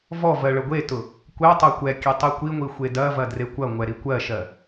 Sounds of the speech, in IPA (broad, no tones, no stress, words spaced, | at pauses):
vɔ vɜɭəɡʷetʊ | kʷɛ tˤɜkʷɛkʲɛ tˤikʷiŋʷi xʷedɐvɐ drekʷɐŋʷɛ ɾikʷɜʃɜ